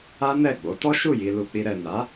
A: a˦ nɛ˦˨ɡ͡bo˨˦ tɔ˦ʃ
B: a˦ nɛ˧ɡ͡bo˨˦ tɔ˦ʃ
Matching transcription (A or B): A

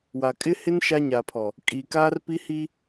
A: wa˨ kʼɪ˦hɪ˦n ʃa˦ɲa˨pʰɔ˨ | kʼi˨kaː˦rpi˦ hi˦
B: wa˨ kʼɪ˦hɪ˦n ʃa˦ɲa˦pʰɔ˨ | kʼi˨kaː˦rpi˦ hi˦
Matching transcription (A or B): A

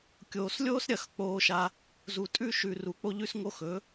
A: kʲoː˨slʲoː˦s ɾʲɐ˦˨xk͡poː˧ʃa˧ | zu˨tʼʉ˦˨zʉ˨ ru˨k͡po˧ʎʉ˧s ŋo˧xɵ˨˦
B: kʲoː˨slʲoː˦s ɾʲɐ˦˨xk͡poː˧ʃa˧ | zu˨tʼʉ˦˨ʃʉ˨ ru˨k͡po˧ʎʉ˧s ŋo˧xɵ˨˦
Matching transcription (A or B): B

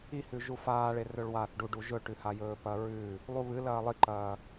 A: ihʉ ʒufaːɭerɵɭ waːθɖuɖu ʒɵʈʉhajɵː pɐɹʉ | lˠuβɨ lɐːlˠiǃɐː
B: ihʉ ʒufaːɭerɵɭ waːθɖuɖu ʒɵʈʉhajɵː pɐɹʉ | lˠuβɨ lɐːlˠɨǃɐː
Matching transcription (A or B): A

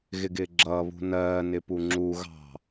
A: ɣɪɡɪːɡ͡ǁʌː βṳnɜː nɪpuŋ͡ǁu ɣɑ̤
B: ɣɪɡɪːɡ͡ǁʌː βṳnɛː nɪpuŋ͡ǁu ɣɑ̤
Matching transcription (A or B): A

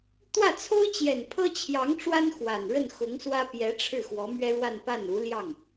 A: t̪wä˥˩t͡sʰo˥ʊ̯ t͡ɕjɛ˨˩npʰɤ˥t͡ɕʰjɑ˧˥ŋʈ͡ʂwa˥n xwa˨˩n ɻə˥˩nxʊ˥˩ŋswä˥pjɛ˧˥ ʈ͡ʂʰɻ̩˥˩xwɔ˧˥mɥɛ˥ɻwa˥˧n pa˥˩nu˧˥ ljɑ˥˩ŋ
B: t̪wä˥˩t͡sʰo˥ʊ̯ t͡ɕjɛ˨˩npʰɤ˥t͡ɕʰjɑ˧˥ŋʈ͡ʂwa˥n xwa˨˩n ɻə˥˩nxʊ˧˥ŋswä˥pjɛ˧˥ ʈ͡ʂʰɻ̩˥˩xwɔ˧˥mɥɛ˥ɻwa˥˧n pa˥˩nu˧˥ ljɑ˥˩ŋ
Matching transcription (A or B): B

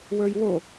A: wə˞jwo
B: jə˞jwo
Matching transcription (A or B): A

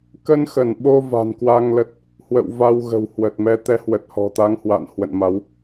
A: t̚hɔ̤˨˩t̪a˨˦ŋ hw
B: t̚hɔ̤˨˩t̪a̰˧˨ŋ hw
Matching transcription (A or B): A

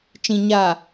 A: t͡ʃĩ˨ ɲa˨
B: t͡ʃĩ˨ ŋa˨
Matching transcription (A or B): A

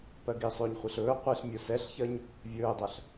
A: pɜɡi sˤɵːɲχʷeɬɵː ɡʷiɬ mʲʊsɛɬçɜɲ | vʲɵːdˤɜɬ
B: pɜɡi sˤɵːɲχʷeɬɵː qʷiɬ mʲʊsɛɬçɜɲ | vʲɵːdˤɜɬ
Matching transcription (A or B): B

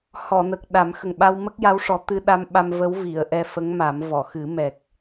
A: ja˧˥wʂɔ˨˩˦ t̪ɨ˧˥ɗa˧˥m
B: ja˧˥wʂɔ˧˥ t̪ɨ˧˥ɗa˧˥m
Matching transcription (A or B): A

